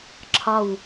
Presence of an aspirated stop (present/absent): present